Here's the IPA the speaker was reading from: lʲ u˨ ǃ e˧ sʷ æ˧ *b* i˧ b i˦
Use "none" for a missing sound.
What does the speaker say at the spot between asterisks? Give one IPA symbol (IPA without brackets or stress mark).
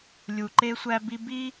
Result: b